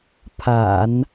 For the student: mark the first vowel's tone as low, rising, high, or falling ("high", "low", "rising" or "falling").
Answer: low